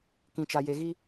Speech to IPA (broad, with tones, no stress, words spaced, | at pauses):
kĩ˦t͡ʃa˦je˦ ɣi˦